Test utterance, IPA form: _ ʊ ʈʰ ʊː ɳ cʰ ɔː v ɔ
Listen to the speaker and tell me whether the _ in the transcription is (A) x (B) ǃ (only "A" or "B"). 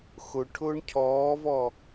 A